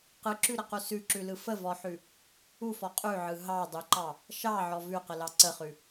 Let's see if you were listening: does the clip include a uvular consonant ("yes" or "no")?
yes